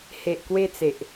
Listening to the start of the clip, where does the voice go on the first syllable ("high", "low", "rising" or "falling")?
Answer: low